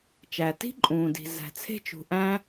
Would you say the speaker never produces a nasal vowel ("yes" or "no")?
no